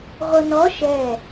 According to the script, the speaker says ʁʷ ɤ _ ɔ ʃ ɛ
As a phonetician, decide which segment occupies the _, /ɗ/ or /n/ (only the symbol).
n